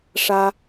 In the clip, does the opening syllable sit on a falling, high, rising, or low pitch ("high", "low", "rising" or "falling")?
high